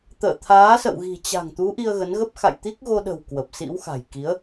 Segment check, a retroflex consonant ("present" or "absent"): absent